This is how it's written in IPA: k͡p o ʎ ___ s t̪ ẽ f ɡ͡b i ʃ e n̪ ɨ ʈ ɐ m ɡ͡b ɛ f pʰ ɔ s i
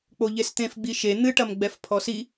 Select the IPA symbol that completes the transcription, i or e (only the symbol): e